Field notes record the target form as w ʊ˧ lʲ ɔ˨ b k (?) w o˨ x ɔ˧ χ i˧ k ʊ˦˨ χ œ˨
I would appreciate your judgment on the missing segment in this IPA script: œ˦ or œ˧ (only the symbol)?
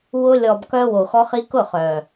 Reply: œ˧